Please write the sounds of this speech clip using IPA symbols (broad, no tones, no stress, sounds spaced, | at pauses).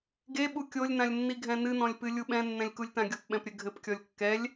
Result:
ɡ e ɓ u kʲ o lʲ n ã lʲ nː i ɡʱ ɛ̃ n ɨ n ɔ̃ lʲ p ɨ lʲ u ɓ ɛ̃ nː ɛ̃ lʲ k u lʲ t ã ɡʲ o p ɓ ɛ̃ p ɾʲ ɘ ɡʱ ɘ p kʲ ɔ lʲ kː ɛ lʲ